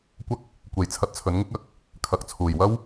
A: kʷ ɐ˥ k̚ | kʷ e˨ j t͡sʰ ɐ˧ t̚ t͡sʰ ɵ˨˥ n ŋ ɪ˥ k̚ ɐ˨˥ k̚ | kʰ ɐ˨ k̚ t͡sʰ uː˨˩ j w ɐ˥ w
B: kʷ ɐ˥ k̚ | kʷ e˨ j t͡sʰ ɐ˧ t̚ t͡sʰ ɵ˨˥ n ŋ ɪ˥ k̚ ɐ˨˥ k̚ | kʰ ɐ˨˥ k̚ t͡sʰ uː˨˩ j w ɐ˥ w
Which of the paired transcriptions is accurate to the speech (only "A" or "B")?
A